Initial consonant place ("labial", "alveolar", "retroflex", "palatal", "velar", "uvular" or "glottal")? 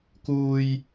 velar